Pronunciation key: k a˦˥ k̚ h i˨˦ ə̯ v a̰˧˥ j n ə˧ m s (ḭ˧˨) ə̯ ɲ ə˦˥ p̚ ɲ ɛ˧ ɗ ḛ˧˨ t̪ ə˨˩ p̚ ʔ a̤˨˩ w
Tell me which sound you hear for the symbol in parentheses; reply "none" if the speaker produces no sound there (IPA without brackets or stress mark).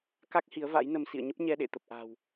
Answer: ḭ˧˨